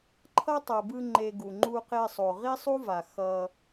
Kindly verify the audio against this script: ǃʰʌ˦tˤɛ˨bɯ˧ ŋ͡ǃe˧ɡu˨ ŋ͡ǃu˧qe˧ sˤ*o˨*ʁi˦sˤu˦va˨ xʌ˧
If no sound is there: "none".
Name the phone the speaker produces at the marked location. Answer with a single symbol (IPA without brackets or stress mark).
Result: o˨